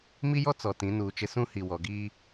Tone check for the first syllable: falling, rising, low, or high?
high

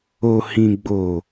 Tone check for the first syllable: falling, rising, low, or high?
low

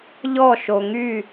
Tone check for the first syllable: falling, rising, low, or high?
falling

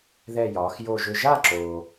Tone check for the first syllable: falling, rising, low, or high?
falling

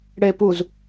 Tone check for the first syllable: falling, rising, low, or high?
low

